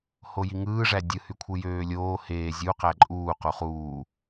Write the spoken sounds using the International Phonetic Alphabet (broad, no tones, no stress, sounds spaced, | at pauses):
h o j i ŋ ɯː ʐ æ dʲ ɯ h y kʷʰ ɯ j øː lʲ oː h eː zʲ u q æ ǃʼ uː q u χ uː